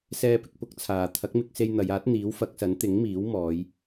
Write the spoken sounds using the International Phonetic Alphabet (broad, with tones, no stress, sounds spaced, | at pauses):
s ɛː˥ p ɪ˨˥ k̚ p ʊ˥ k̚ t͡sʰ aː˨ t̪ʰ ɐ˨˥ k̚ m ɪ˧ k̚ s e˧ j n̪ ɐ˨˧ j aː˨˥ t̚ n̪ iː˨˥ w f ɐ˨˥ k̚ s ɐ˨˥ n t̪ ɪ˨˥ ŋ m iː˨˥ w m ɔː˨˧ j